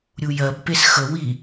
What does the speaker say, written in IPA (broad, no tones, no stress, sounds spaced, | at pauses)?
ɾʲ u j ɜ b p e s x ə w i